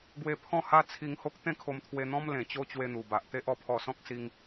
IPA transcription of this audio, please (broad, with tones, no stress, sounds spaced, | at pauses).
ɡ w e˧ pʰ ɔ̃˥˧ h a˦ t͡sʰ i˧ ŋ h o˦ k̚ t̪ ẽ˥˧ kʰ o˧ m t̪ʰ w e˧ n̪ ɔ̃˦ m l ẽ˨˩ t͡ɕ o˦ t͡ɕ w e˧ n̪ u˨˩ b a˨ ʔ t̪ e˦ ʔ ɔ˧ pʰ ɔ˧ s ɔ̃˦ k̚ s i˦ ŋ